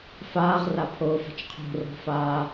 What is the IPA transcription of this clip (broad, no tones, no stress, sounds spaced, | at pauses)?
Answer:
f aː ʁ r a pʰ oː f a̤ t͡ʃ qʰ o̤ r ɔ̤ f aː